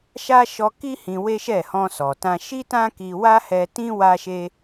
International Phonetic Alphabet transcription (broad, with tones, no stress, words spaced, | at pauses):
ʃa˦ʃɔ˧ki˦ hĩ˧we˦ʃɛ˦˨ hɔ̃˧ sɔ˨tã˧ ʃi˦tã˦ki˧wa˦ hɛ˧tĩ˦ wa˦ʃe˦